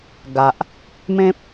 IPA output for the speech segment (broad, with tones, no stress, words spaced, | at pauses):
ɡa˨ʔ | mẽ˦p̚